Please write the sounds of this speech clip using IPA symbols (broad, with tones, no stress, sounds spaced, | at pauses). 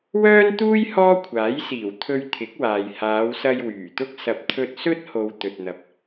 w œː˥ n t̪ uː˥ j h ɔː˥ kʷʰ aː˨˥ j s iː˨˩ w t̪ʰ ɵ˧ ɥ t̪ʰ ɪ˨˥ k̚ w aː˨ j h aː˨˧ w s ɐ˧ j w yː˨˩ t̪ ʊ˥ k̚ s ɐ˨ p̚ t̪ʰ ɵ˧ t̚ s ɵ˥ t̚ h o˨ w t̪ ɵ˨ t̚ n̪ ɐ˨ p̚